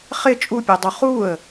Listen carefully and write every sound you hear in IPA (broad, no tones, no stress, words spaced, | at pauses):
χɪ t͡ʃʼupʲɛdˤu χuə̯